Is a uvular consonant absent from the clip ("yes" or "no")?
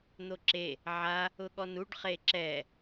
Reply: no